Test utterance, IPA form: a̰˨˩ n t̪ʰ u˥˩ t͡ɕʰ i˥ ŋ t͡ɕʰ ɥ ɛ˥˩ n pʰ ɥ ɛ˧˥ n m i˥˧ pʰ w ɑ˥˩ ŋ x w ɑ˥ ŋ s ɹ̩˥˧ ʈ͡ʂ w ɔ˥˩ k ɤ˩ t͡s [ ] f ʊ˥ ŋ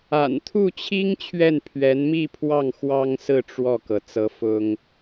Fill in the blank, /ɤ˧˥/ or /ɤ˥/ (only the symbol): ɤ˧˥